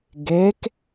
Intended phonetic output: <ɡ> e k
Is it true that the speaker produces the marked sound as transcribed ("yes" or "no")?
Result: yes